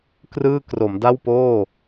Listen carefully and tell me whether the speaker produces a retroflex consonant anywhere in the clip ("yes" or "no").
no